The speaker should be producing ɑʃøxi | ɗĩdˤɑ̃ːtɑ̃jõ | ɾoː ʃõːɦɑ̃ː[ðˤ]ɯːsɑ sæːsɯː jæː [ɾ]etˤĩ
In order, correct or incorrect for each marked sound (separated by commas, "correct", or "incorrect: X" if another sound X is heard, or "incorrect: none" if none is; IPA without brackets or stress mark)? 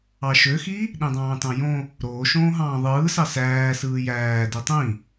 correct, incorrect: d